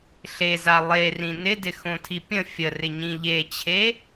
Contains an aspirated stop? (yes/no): yes